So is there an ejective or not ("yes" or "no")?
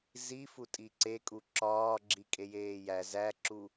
yes